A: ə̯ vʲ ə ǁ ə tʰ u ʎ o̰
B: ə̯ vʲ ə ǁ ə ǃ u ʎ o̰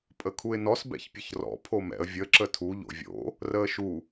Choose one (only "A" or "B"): A